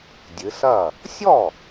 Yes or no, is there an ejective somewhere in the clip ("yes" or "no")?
no